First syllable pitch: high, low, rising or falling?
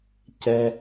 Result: high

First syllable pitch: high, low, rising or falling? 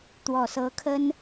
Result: low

